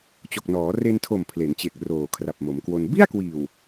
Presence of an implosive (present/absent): absent